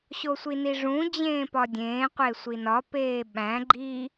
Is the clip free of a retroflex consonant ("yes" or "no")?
no